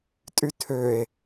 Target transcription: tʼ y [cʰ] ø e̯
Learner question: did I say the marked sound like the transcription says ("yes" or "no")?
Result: no